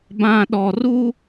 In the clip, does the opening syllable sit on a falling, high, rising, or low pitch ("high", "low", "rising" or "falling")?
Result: low